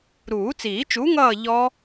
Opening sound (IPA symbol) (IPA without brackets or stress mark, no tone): ɾ